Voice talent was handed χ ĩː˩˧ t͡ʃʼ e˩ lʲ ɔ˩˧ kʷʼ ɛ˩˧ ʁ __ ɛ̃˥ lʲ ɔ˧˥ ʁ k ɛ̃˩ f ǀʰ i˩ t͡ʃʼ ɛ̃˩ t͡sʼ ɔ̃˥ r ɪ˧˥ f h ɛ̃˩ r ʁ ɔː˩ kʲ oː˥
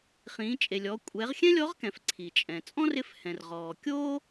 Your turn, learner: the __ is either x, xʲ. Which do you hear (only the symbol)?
xʲ